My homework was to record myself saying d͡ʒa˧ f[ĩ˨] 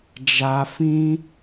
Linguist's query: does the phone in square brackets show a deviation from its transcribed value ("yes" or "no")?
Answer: yes